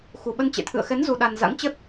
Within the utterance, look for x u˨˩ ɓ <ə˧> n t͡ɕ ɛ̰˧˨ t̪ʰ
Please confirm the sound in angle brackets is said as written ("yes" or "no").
yes